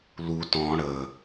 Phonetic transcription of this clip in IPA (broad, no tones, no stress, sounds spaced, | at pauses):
l u t ɔ̃ ɽ ə